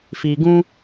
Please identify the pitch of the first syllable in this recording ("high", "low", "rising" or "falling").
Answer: low